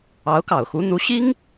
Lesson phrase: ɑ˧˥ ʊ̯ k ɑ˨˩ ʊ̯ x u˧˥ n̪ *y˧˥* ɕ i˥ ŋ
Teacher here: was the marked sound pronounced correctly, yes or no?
no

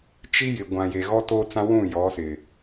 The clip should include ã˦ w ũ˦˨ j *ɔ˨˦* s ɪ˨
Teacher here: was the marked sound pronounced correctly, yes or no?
yes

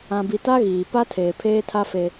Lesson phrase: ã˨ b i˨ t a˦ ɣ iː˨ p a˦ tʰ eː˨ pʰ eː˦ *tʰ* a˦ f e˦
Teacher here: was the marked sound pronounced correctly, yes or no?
yes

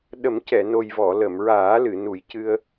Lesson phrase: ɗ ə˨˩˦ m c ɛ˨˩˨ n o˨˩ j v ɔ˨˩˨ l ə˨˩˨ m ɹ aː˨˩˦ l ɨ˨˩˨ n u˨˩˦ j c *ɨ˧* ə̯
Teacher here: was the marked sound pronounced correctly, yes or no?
yes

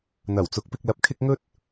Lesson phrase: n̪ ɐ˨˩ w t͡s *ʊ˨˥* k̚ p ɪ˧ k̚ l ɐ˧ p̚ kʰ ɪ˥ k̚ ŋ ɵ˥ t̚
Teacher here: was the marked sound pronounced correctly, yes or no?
yes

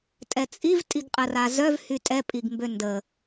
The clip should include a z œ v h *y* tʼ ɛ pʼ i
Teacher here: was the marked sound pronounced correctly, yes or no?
yes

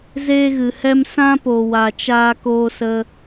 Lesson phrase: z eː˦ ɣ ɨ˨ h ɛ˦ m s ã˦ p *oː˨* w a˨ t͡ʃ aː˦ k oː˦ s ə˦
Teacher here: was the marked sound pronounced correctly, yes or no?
no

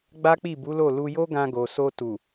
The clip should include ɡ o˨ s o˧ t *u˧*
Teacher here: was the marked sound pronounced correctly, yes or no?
no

